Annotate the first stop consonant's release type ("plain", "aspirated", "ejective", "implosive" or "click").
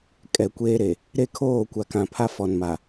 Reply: ejective